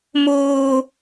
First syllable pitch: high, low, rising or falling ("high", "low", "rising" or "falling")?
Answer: high